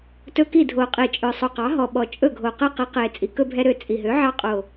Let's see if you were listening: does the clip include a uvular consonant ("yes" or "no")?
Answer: yes